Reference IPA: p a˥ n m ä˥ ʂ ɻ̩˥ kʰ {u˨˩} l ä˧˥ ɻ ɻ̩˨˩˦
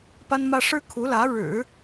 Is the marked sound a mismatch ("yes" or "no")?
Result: yes